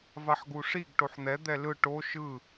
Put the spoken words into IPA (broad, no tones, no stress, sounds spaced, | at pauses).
v a ħ ɡ u ʂ i ɡ ʈ o ħ n̪ ɛ d̪ ɛ l ɯ ʈ o ʃ ɯ